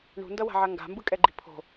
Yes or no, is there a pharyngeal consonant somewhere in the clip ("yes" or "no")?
yes